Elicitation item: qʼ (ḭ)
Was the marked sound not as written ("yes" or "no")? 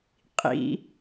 no